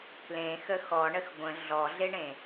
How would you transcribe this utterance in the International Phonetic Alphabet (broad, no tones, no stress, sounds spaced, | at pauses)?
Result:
k l ẽ x ə x ɔ ɳ ə x ɡʷ ə̃ ɮ ɔ ɮ e ɳ ẽ